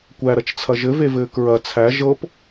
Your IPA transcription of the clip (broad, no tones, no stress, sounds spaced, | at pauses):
kʷ æ ɾ ɐ t͡ʃ t͡sʰ ɐ ʒ ɘ v e v ɘː k ɹ ɐ t͡sʰ æ ʒ ɤ p